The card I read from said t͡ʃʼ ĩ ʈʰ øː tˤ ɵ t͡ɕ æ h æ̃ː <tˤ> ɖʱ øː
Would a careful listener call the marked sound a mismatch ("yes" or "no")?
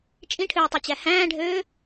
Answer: yes